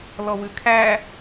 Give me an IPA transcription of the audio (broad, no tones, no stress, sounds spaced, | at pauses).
l ɔ w ʉ kʰ æ